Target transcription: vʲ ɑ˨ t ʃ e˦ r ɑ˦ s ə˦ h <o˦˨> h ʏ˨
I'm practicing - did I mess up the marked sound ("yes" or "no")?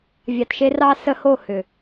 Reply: no